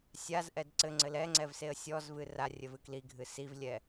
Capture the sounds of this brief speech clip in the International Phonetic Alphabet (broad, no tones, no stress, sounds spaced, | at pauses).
sʲ a z ʔ ɛ d ǀ ɘ ŋ͡ǀ ɘ l ɛ ŋ͡ǀ ɛ v s e ə̯ sʲ ɔ z v ɨ r a rʲ ɘ v ɨ k l i ɡʱ ɨ s i v lʲ ɛ